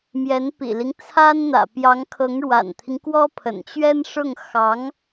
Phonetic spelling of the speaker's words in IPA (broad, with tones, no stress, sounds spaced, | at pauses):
m j ɛ˧˥ n p ḭ˨˩ l i˦ ŋ t͡sʰ a˥ n n̪ ä̰˨˩ p j ɑ˧˥ ŋ kʰ ɤ˧˥ ŋ ɻ w a̰˨˩ n t̪ʰ i˦ ŋ k w ɔ˥ pʰ ə̰˨˩ n t͡ɕ ɥ ɛ˥ n ʂ ʊ˥˩ ŋ x ɑ˧˥ ŋ